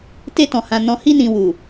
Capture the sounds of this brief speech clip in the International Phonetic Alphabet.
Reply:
t e˧ t ɔ̃˨ h ã˨ n ɔ̃˨ h i˧ n ĩ˨ w u˨

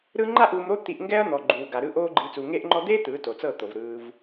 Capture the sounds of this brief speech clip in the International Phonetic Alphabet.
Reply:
ɾ ɯ˦ ŋ͡ǃ a˦ ʔ uː˧ m ɾ o˦ t̪ i˧ ʔ ŋ ɡ ɛ˦ ɐ̯ n̪ ɔ˨ ɡ͡ǃ uː˨ ɡ a˨ ɾ ɯ˦ ʔ oː˦ ɡ͡ǃ i˧ t͡s u˨ ŋ eː˧ ʔ ŋ͡ǃ ɔ˧ d̪ eː˦ t̪ ɯː˨˦ t o˨ t͡s ɤ˦˨ t̪ o˨ v ɾ ɯː˧ v

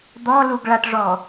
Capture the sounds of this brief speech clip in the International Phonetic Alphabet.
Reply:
d̪ ɔ l u ɡ ɭ a ʈ ʐ ɔ

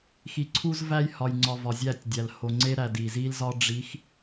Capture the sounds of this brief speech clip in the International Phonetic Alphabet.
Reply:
x i˨ ǀʰ u˦ z v æ˦ j h ɒ˨ j ŋ͡ǀ ɒ˨ v ɒ˨ zʲ æ˦˨ tʲ dʲ æ˨ l h o˨ ŋ͡ǀ e˦ ɾ æ˨ d i˨ z i˦ l z ɒ˦ ɖ͡ʐ i˨˦ x

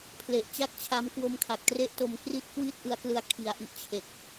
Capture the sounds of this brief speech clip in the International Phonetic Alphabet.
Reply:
pʰ l e˨˩ ʔ t͡ɕ a˥˩ k̚ t͡ɕʰ a˦˥ m k w o˧ m kʰ a˨˩ k̚ t r e˦˥ ʔ t o˧ m k r i˦˥ t̚ k w i˥˩ t̚ ʔ ɯ˧ a̯ k l ɯ˧ a̯ kʰ i˨˩ a̯ ʔ i˦˥ ʔ t͡ɕʰ e˨˩ k̚

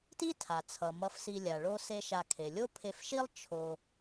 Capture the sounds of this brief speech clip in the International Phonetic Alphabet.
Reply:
t i˥ tʰ a˩ t͡sʰ ʌ˩ m ʌ˧ f s i˧ lʲ a˩ ɭ o˥ s e˥ ʃ a˧ kʰ e˩ lʲ o˥ pʰ e˧ f ʃ i˥ lˠ t͡ʃʰ o˧

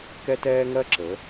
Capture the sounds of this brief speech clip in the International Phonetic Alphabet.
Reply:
k ɛ˥ t ɛː˥ ŋ ɜ˥ ǁ ə˨˦

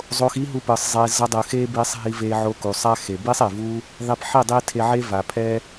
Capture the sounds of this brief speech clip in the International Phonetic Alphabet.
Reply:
zˤ o˧ x i˦ ɦ u˧ p ɯ˨ sˤ zˤ e˧ z ʌ˧ dˤ ɯ˨ x e˦ b i˧ sˤ ɦ i˧ v e˧ ʕ o˧ k u˨ sˤ a˦ x e˨ b i˦ sˤ e˨ v u˦ | ðˤ i˧ p ħ i˦˨ dˤ i˦ tʰ e˧ ʕ e˦ v a˨ pʰ ɛ˦

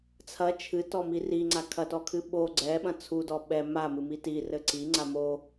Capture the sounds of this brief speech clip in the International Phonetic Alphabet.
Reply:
t͡sʰ ɐ t͡ʃʰ ɨ t ɔ m i r i ŋ͡ǀ a kʰ ɐ t ɔ kʰ ɨ ɓ o ɡ͡ǀ ɛ ɓ ɐ̃ t͡sʰ u d ɔ ɓ ɛ m a m ɨ m i t i r ɘ ǀ i ŋ͡ǀ a m o

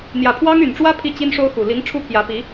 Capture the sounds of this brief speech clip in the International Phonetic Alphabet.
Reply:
n̪ j ä˨˩ pʰ w ɑ˥ ŋ y˨˩ n ʈ͡ʂ w ä˥ pʰ i˥˩ t͡ɕ i˥ n ʂ o˥ ʊ̯ x u˨˩ l i˧˥ ŋ ʈ͡ʂʰ u˥ pʰ j ä˧˥ p i˧˥

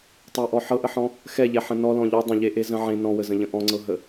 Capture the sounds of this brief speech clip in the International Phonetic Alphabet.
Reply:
tˤ ɛ ʔ ɔ ħ ɤ ʔ ə ħ ɔ̃ | x ɛ ʎ ɛ ħ ə̃ n ɔ l ɔ̃ ʎ ɔ dˤ ə̃ ʎ e ʔ e z ə̃ ʕ ẽ n ɔ̃ w ə z ə̃ ʎ ə̃ ʔ ɔ̃ ŋ͡ǀ ɤ ɦ ə

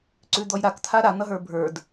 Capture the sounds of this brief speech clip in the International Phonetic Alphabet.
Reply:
ǀ ʉ d̪ ɔ j ɾ a k t̪ʰ a ɾ a n̪ ʌ ɦ ə˞ bʱ ə˞ d

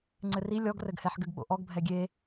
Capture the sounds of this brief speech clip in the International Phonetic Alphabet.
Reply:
ŋ͡ǀ ɘ r i lʲ ɔ ɡ r ɘ ɡ h ɛ ħ ɡ ɘ ɡ ɓ o̰ ʔ ɔ ɡ bʱ ɛ ɡʲ e

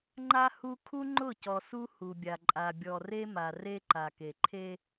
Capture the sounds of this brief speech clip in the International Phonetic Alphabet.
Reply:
ŋ͡ǃ a˦ h u˦ kʰ u˦ ŋ͡ǃ ʊ˦˨ c ɔ˨ s u˦ h u˨ bʲ a˨ ǃʼ a˨ bʲ ɔ˨ r e˦ m a˨ r e˦ ǃ a˨ k e˨ ǃʰ e˦

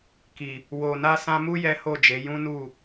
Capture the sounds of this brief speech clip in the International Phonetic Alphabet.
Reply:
k i˨ | w o˨ n a˧ s ã˧ m u˦ j ɛ˦ h o˦˨ d͡ʒ e˨˦ j ũ˦ n u˦˨

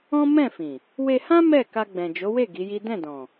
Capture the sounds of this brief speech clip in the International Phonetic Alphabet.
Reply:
ɔ̃˦ m ɛ̃˦˨ f ĩ˨ | w e˧ h ã˦ m ɛ˦˨ k a˧ ɡ͡b ɛ̃˨ d͡ʒ o˨˦ w e˦˨ ɡ i˨˦ j i˦ d ɛ̃˦˨ d ɔ̃˨

